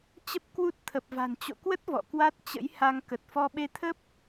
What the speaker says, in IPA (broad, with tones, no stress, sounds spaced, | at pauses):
t͡ɕ ə˦˥ p̚ k w u˦˥ t̚ t̪ʰ ə˨˩ p̚ v a̤˨˩ n t͡ɕ o̰˧˨ k w ə˦˥ t̚ v ɔ̰˧˨ k w a˦˥ t̚ t͡ɕ ə̰˧˥ j h a˧ ŋ k ə˨˩ t̚ f ɔ˧ ɓ e˧ t̪ʰ ə˦˥ p̚